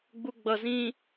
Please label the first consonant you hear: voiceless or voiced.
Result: voiced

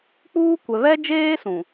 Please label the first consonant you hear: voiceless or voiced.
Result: voiceless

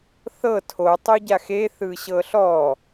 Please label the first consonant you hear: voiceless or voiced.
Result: voiceless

